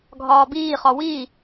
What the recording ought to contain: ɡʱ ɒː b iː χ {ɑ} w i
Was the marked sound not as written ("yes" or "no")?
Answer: yes